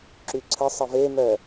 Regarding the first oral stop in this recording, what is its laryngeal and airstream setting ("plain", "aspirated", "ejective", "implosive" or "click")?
click